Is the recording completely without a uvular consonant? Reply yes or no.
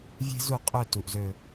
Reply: no